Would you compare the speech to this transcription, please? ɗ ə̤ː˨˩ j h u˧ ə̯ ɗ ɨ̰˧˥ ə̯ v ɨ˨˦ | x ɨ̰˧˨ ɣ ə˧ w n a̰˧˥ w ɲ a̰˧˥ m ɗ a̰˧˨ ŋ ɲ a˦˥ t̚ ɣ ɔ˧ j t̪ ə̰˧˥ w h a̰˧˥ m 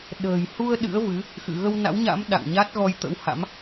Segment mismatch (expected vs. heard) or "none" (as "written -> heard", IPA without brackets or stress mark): none